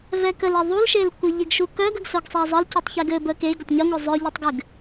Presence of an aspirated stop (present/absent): absent